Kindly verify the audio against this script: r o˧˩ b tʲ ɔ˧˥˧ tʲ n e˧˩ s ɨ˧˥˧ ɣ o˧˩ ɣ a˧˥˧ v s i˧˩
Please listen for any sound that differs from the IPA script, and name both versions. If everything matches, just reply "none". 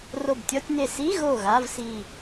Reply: ɨ˧˥˧ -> i˧˥˧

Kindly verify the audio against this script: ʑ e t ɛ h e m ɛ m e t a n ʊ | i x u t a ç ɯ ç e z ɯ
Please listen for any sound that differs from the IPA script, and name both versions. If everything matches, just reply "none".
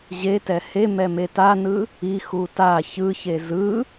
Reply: ʊ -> ɯ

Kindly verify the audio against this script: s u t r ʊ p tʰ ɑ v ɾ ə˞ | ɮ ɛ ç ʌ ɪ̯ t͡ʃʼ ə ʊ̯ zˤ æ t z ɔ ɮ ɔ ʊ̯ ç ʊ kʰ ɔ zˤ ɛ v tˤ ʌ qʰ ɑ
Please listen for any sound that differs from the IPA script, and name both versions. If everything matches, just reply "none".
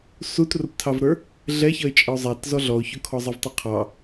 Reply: none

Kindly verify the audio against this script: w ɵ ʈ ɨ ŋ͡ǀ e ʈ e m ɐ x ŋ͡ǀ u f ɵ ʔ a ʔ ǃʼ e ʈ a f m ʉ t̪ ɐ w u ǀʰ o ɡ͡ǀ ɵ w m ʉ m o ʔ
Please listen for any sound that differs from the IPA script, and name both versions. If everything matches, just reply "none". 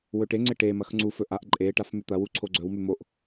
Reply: ɨ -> e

